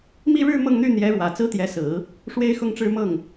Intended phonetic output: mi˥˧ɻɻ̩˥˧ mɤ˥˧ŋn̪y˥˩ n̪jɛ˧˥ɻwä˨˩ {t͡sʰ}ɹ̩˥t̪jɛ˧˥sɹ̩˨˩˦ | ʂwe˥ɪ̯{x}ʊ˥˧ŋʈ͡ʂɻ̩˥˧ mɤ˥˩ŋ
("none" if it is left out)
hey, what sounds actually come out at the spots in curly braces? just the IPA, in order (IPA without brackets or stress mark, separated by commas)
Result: t͡s, x